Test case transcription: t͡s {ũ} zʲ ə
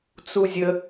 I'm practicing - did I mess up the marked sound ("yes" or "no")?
yes